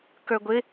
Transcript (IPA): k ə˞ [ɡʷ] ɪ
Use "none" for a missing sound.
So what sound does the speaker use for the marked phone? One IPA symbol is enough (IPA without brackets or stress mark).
ɡʷ